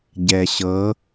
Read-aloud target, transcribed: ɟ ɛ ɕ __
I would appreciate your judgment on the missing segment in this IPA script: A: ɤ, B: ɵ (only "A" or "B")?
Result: A